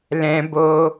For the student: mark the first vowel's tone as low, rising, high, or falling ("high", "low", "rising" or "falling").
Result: high